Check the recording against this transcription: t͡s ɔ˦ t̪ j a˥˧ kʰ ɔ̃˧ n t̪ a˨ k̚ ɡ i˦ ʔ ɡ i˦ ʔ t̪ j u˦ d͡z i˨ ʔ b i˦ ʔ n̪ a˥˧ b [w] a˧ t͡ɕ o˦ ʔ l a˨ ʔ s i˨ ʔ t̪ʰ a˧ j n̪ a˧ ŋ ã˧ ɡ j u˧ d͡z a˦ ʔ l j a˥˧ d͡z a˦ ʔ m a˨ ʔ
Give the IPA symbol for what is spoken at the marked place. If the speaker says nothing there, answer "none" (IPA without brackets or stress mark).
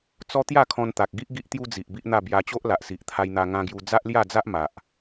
j